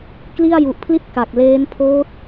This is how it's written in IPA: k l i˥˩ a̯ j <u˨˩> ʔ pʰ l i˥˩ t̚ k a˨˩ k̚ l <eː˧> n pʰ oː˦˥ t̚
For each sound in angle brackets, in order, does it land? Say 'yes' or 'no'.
yes, no

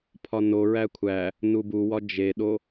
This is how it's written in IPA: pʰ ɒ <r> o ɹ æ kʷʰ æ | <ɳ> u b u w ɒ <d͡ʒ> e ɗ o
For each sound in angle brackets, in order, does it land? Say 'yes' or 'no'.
no, no, yes

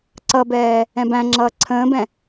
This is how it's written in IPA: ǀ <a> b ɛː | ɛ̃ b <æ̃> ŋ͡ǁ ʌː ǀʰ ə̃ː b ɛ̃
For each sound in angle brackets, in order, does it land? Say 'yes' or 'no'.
no, yes

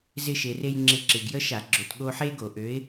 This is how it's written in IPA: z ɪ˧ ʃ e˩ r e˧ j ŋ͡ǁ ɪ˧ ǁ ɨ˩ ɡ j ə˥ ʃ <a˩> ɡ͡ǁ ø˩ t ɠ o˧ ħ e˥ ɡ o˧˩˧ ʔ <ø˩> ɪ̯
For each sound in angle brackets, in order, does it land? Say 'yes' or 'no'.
no, no

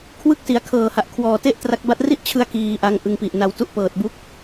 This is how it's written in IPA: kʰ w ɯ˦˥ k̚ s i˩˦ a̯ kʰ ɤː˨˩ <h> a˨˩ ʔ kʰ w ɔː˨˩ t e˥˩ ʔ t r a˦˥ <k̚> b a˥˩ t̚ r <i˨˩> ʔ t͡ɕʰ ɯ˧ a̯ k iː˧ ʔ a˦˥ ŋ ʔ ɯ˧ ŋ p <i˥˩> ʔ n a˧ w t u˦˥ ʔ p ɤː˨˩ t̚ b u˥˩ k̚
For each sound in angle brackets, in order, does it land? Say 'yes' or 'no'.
yes, yes, no, no

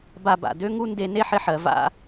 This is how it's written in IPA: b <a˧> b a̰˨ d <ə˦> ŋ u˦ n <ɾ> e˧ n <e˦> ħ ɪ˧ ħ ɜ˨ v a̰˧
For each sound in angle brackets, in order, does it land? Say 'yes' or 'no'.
yes, no, no, yes

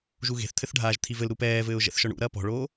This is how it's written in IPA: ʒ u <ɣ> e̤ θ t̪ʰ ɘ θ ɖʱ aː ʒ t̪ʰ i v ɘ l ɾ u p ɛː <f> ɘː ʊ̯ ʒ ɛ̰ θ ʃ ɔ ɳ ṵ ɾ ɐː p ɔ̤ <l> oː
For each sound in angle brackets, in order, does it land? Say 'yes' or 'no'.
yes, no, no

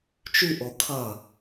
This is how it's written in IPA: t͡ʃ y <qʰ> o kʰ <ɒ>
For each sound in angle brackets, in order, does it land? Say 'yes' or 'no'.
no, no

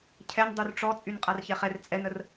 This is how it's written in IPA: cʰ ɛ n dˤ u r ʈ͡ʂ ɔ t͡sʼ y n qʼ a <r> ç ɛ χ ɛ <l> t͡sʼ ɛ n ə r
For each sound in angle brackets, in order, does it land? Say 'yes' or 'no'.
yes, no

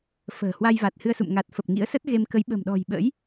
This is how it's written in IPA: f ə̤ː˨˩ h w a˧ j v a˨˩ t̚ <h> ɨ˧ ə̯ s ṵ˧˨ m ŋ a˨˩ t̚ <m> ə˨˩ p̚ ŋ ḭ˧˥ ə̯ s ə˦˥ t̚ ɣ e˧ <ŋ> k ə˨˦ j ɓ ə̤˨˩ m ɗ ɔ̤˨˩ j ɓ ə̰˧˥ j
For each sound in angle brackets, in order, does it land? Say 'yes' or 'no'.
yes, no, no

